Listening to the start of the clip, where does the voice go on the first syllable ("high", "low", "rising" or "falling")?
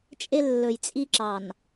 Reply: high